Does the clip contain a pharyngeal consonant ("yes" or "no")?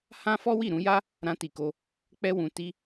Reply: no